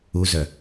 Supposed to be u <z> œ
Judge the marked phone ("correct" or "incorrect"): correct